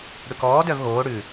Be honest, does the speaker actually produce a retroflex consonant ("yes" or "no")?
yes